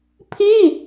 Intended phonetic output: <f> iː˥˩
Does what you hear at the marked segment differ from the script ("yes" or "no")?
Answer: yes